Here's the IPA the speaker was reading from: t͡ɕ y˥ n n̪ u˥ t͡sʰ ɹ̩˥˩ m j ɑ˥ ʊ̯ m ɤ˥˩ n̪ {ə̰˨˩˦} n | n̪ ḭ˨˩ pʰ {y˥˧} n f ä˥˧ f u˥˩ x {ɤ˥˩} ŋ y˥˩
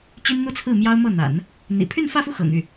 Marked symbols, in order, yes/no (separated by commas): no, yes, no